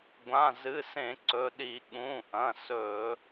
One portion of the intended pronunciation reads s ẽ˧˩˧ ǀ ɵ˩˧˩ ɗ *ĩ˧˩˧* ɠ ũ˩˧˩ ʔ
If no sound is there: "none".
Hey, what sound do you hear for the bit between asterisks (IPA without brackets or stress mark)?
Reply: i˧˩˧